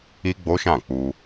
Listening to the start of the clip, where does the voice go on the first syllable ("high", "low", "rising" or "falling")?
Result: high